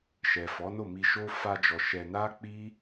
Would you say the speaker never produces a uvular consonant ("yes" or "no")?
yes